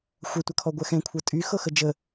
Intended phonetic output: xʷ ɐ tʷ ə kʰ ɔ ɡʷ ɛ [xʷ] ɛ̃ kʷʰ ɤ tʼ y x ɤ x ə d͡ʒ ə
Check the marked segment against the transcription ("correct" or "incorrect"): incorrect